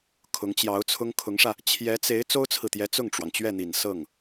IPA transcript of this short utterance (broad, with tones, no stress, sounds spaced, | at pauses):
kʰ ʊ˧˥ ŋ t͡ɕ j ɑ˧˥ ʊ̯ t͡sʰ ʊ˥ ŋ kʰ ʊ˧˥ ŋ ʂ ä˧ | t͡ɕʰ j ɛ˧˥ t͡s e˧˥ ɪ̯ t͡s o˥ ʊ̯ t͡sʰ ɹ̩˨ t̪ j ɛ˧˥ t͡s ʊ˥˩ ŋ ʈ͡ʂ w ɑ˩ ŋ t͡ɕ ɥ ɛ˥˩ n̪ i˨˩ n s ɤ˥˩ ŋ